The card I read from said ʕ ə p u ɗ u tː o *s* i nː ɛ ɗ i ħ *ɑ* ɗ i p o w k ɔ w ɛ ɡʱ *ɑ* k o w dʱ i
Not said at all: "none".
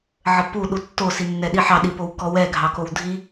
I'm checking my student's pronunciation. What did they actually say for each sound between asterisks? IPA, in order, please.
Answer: s, ɑ, ɑ

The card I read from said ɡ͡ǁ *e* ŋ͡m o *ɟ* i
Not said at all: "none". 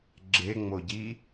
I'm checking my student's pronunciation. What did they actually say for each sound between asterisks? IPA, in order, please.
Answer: e, ɟ

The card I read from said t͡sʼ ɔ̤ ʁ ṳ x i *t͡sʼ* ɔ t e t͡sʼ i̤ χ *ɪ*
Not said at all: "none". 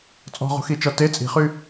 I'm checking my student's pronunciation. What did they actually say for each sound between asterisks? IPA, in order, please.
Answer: t͡ʃ, y

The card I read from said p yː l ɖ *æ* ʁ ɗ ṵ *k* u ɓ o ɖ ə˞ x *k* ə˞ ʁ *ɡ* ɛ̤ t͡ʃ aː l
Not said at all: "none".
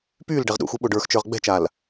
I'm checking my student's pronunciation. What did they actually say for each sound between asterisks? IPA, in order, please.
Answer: ɛ, x, t͡ʃ, ɡ͡b

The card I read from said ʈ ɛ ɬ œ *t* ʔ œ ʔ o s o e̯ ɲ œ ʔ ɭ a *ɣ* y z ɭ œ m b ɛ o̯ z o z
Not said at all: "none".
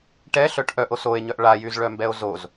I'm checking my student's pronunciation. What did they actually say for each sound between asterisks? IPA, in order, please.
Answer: ʈ, j

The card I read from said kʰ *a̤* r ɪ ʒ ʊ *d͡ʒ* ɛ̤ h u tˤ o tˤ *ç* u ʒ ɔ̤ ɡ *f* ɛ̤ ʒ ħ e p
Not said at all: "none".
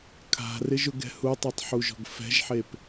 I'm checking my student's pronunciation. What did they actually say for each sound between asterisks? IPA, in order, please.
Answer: a̤, ɡ, ħ, f

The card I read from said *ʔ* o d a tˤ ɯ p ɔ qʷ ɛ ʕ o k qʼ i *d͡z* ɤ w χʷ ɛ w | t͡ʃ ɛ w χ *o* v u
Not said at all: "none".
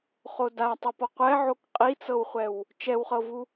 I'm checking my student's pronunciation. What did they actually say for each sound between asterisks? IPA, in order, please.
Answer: χ, t͡s, ɤ

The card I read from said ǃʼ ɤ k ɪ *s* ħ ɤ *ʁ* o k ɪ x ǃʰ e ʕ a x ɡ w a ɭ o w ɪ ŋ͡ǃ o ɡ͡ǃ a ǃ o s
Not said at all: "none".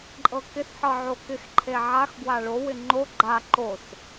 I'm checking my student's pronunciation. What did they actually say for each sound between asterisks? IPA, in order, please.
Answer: s, ʕ

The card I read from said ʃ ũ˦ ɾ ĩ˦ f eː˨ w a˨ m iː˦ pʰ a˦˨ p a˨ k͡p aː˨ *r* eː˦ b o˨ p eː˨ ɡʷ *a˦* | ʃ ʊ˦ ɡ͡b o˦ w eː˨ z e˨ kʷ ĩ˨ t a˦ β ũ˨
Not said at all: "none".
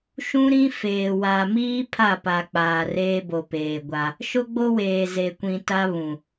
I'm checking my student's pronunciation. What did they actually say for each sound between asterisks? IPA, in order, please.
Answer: r, a˦

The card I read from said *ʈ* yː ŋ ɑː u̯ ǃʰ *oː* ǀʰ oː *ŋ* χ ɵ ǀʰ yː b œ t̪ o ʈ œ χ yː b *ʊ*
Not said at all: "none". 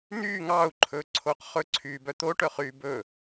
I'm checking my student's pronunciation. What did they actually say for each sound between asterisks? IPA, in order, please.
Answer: n̪, ɵː, q, ɵ

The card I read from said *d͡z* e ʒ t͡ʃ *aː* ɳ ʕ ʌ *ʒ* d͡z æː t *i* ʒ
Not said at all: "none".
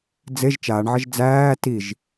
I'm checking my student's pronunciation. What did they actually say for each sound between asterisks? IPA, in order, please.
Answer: d͡z, aː, ʒ, i

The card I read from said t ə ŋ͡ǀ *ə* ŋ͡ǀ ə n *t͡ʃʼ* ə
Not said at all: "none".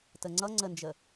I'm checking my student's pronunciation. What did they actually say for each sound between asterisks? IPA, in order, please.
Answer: ʌ, d͡ʒ

